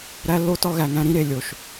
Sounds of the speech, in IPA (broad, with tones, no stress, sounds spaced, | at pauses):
ɾ æ˦ lː o˦ t ɒ˦ ɣ æ˨ ŋ æ̃˦ ɾ ĩ˦ ɾ e˨ lʲ o˨ ʃ